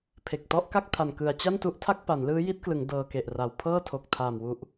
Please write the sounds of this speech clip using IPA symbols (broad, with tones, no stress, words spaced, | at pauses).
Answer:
pʰe˨˩k̚tɔ˦˥ʔka˥˩k̚ tʰa˨˩nkɯ˨˩a̯ t͡ɕa˥˩ntu˦˥ʔtʰa˥˩k̚ pa˩˦nlɯː˦˥ji˦˥t̚klɯ˩˦ŋ dɤː˧ke˨˩ʔra˨˩w pʰɤː˥˩tʰo˨˩k̚tʰaː˨˩mwu˨˩ʔ